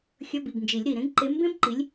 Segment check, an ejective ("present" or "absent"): absent